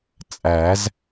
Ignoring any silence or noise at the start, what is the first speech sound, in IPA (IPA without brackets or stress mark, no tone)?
t͡sʼ